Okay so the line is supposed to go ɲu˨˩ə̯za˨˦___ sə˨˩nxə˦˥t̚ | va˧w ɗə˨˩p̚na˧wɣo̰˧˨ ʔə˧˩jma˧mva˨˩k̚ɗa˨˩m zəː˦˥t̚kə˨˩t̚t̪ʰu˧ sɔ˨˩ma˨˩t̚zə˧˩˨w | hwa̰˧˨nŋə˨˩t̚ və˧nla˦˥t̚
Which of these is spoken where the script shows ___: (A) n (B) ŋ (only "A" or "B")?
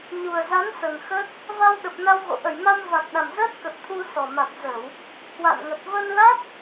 A